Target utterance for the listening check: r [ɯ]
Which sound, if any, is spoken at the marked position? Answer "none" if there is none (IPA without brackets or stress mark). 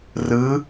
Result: ɯ